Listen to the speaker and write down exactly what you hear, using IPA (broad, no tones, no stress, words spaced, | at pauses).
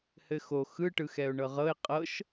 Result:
hɘxo xɯ ʈɯxɛʊ̯ɳɤʁɤɪ̯ qʼɤʃ